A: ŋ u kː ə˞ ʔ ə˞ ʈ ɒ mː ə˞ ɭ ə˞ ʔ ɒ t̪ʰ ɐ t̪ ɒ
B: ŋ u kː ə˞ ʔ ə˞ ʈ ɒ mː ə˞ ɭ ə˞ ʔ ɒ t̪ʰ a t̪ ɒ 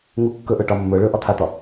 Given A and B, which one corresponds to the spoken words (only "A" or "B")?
B